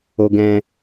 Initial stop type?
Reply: plain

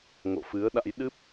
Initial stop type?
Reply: implosive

